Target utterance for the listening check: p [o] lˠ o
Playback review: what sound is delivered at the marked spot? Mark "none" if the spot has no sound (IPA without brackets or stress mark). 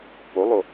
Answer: o